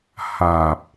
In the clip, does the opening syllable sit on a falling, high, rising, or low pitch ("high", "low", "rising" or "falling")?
low